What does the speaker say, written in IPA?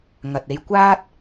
ŋ ɐ˨ t̚ e˧ j kʷ aː˥ t̚

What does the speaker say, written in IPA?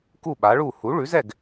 k u˥˩ ɓ a˩˥ ɭ u˥˩ h u˩˥ ɭ ʉ˩˥ z ɛ˥˩ ɡ

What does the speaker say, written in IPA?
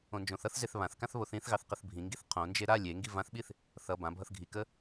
õ n d͡ʒ õ θ ʌ θ z e θ β ã θ k ã θ β o θ ĩ θ ɣ ɑ θ q ə θ bʱ ĩ ŋ ɡ i θ qʰ õ n d͡ʒ e ɾ a lʲ e ŋ ɡ i v ã θ ɓ i θ | θ ʌ b ã bʱ ʌ θ ɡʱ i k ə

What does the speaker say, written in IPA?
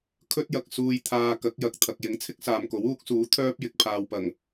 kʰ ɵ˥ t̚ j ɐ˨ k̚ s uː˨ j t̪ʰ aː˨ k ɐ˨˥ k̚ j ɐ˨ k̚ t̪ʰ ɐ˨ k̚ j ɪ˨˥ ŋ t͡sʰ ɪ˥ k̚ s aː˨ m k o˨˥ w uː˥ k̚ s uː˨˥ t̪ʰ œː˥ p̚ j ɪ˨ k̚ pʰ aː˨ w p ɐ˨˩ ŋ

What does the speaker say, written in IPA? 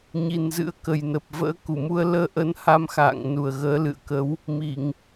ɲ i˨˩ n z ɨ̰˧˥ ə̯ k ə˨˩ j n ə˨˩ p̚ v ə̰ː˧˥ k u˧˩ m u˧ ə̯ l əː˧ ʔ ə˨˦ n h a˧ m x a̰ː˧˨ ŋ n u˨˩ ə̯ ɣ əː˨˦ l ɨ̰˧˨ ə̯ k ə˨˦ w | m i˧˩˨ ŋ

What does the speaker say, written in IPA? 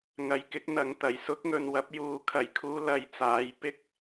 ŋ ɐ˨˧ j k ɪ˨˥ k̚ n̪ ɐ˨˧ ŋ t̪ ɐ˨˩ j s ʊ˥ k̚ ŋ ɵ˨ n w ɐ˧ p̚ j uː˧ kʰ ɐ˨˩ j kʰ uː˧ l ɐ˨˧ j t͡s aː˨˥ j p ɪ˥ k̚

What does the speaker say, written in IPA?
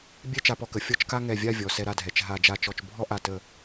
bʲ ɛ˥ t͡ʃ a˧ p ɔ˧ k ə˩˧ fʲ ɔ˥˧ t͡ʃ k a˥ ŋ ɛ˧˩ vʲ a˥˧ vʲ ɔ˩˧ s ɛ˧ ɾ a˧ dʱ ɛ˩˧ t͡ʃ ɦ a˧˩ d͡ʒ a˧˩ t͡ʃ ɔ˧˩ t͡ʃ bʱ ɔ˥ ʔ a˧˩ t ə˧˩

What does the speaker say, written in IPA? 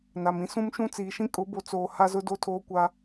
n a˨ m ĩ˦ s ũ˦ m ʃ ũ˦ t͡s iː˨ ʃ ĩ˦ kʼ ʊ˨˦ b o˨ t͡s oː˨ h a˦ z ʊ˦ d o˦ tʰ oː˦ kʷ a˦

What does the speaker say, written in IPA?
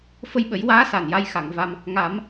f ə˧ j ɓ ə˨˩˦ j w aː˧˥ s a˨˩ n j a˧ j x a˨˩˨ ŋ v a˧ m | ŋ a˨˩˦ m

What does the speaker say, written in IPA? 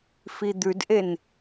f i d̪ ʉ d ʔ e n

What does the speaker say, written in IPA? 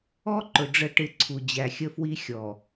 ɔ˦ ǃ ʊ˨ ɖ͡ʐ ə˦˨ ʈ ɪ˦˨ ǀʰ u˨ d͡ʑ æ˨ xʲ ə˦ f w i˦ xʲ ɔ˨

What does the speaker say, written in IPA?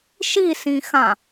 ʃ i s ĩ x ã

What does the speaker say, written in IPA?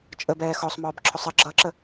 t͡ʃʼ ə b ɛː x ɔ sˤ m ɔː b ǁʰ ʊ sˤ ə ɡ͡ǁ ʌ ǁ ə

